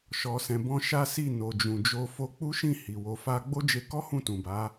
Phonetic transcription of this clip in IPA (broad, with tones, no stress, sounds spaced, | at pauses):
ʃ ɔ˧ s ɛ̃˧ b ɔ̃˦ ʃ a˦ s i˦˨ n o˨ d͡ʒ ũ˨ d͡ʒ o˧ f o˧ k͡p u˦ ʃ ĩ˦˨ h i˨ w o˧ f a˦ ɡ͡b o˦ d͡ʒ e˧ k ɔ˦ h ũ˦˨ t ũ˨ b a˨˦